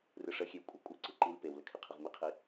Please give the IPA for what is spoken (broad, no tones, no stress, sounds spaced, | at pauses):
r ɯ ʂ ə xʲ e w kʷʼ ɛ kʷʼ ɛ ǀ ɯ ǃ i l p e w l ə kʰ e qʰ ə ʁ m i qʰ i